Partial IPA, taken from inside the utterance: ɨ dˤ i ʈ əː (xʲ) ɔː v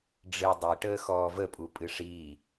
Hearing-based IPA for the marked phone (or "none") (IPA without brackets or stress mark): x